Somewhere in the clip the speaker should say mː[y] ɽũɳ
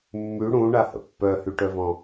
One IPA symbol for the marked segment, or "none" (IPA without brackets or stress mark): y